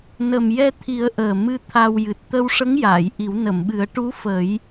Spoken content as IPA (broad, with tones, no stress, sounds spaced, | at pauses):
n ə˨˩ m j ɛ˧ t̪ʰ i˨˩˦ ə̯ ʔ əː˨˩ m ɨ˧ t̪ʰ a˧ w j ɨ˨˩ t̚ t̪ ə˧ w ʂ ə˧˥ ŋ j aː˨˩˨ j ʔ i˨˩˦ w n ə˨˩˨ m ɓ ɨ˨˩˦ ə̯ ʈ u˧˥ f ə˨˩˦ j